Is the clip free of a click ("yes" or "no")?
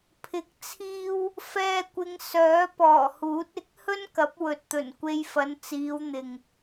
yes